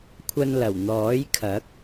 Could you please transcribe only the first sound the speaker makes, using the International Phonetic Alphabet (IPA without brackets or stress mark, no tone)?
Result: kʷʰ